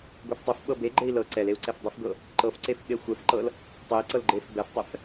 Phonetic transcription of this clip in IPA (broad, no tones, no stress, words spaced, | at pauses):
ɡʷeftˤɤfɓɤ beɡ͡ǃei̯ lɤ ǀɛleu̯ ǀɛfdˤəfɡɤ | ǃɤfǀef ɓexʷɛfǃɤl | tˤɛi̯ǀɤl ɡ͡ǃef bɛftˤɛf